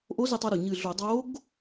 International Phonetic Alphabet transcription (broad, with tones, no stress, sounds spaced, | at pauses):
ʔ o˧˥ z ɪ˧ tˤ ɤ˧ ɾ o˩ ɲ ɨ˧˩ ɮ o˧˩˧ dˤ o˧˥ ɡ